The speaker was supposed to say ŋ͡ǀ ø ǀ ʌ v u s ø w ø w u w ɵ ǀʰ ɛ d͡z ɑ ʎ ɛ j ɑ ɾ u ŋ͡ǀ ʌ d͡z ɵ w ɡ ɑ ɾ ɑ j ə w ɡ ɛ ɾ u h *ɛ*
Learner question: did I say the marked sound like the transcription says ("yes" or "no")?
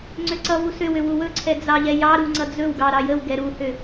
no